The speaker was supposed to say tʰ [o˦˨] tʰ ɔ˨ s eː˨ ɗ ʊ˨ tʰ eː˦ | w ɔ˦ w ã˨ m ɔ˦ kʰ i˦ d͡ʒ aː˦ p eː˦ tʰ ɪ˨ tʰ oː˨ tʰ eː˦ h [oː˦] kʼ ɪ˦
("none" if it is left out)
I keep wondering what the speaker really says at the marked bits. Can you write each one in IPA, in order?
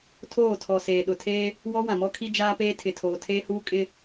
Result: oː˦˨, uː˦

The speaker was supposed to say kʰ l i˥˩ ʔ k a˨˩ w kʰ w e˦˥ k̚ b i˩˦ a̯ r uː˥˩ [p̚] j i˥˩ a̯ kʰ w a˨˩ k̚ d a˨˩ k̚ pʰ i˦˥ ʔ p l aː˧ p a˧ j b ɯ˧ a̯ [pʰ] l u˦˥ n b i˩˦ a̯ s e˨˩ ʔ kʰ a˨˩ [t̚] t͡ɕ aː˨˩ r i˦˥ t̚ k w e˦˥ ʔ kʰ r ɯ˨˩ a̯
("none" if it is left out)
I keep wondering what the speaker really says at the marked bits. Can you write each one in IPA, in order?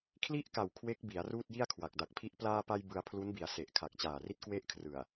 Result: t̚, pʰ, k̚

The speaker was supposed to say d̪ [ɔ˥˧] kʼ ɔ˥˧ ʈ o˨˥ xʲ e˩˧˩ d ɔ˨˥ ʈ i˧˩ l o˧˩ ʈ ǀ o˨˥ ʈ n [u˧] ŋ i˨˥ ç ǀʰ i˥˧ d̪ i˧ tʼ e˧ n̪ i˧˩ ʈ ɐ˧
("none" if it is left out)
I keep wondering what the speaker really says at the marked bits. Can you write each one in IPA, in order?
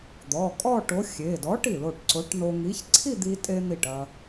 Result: ɔ˩˧˩, o˧

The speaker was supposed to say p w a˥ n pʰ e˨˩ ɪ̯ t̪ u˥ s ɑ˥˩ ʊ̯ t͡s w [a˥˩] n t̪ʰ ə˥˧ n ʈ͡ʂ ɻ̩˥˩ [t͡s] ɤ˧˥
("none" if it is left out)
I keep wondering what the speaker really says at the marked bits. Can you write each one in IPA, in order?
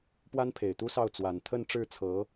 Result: a˨˩, t͡sʰ

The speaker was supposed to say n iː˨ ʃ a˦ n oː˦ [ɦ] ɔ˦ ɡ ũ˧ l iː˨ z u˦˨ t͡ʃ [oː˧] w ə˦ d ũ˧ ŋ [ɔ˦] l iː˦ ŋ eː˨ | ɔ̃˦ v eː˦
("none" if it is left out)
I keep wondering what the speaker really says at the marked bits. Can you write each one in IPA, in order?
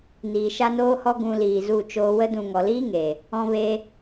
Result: h, oː˧, ɔ˨

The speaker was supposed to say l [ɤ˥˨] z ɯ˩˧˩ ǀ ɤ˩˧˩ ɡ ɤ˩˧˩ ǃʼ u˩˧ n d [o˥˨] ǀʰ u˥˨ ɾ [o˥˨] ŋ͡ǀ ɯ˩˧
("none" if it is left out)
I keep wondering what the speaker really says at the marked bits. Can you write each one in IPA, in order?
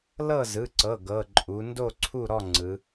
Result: ɤ˥˨, o˥˨, ɔ˥˨

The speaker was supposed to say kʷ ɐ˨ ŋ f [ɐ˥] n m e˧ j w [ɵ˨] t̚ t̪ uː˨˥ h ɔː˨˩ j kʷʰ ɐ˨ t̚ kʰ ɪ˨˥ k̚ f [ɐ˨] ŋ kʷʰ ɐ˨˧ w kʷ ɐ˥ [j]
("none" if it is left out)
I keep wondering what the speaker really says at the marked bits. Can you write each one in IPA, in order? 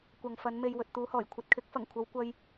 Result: ɐ˨˧, ɵ˨, ɐ˨˩, j

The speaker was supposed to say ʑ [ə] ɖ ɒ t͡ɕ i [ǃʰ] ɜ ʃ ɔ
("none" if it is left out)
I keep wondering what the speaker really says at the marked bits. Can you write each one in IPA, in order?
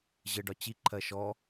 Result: ə, ǃʰ

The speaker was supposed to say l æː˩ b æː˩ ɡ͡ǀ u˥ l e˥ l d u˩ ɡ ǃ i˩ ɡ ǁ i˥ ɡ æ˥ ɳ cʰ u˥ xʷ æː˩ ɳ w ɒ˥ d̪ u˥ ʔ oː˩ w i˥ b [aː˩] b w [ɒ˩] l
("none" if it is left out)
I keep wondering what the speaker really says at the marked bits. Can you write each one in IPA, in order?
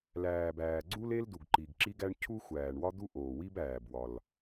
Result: æː˩, ɒ˩

